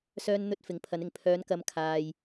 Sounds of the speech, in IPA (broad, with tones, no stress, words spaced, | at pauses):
sœː˧nn̪ɵ˧t̚ fɪ˨˧ŋpʰɐ˨˧nɪ˨ŋ pʰœː˨˧nkɐ˨˧mkʰaː˨j